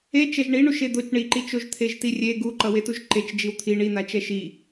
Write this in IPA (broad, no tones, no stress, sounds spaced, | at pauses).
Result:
e t͡ʃ ɛ ʒ ɳ i ɳ u ʃ e d̪ o t͡ʃ ɳ i ǃ i t͡ʃ o ʒ t̪ʰ e ʒ t i rʲ e ɡ u ǃ ʌ w e t u ʒ ǃ e t͡ʃ d͡ʒ i w t̪ʰ i ɳ i n̪ a t͡ʃ ɛ ʃ i